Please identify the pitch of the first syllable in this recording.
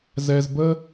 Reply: low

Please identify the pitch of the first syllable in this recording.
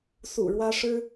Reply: low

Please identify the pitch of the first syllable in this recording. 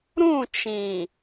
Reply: falling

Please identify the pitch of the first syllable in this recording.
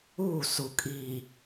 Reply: falling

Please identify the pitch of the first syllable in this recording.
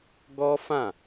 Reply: high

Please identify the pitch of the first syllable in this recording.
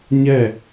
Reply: falling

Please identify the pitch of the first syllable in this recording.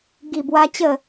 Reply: low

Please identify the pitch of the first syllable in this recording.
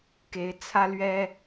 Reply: rising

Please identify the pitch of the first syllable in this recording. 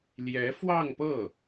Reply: rising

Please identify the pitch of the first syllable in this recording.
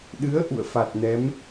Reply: rising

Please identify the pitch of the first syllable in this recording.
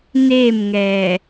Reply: falling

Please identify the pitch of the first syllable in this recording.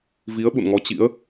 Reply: rising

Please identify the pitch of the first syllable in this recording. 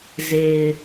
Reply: low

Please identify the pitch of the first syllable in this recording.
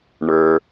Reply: low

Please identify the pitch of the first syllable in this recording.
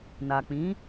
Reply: low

